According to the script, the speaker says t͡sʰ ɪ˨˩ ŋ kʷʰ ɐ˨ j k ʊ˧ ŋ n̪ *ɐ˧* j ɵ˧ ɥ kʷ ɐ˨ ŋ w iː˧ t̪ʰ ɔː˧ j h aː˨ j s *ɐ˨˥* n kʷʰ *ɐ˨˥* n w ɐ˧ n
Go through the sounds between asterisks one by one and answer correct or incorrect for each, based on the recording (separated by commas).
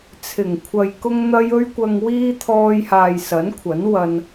correct, correct, correct